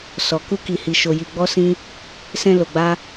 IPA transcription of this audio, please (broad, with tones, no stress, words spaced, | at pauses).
sɔ˨ ku˧ki˨hi˨ ʃo˨ji˨ɡ͡bɔ˧sĩ˧ | sɛ̃˨ lo˨ɡ͡ba˧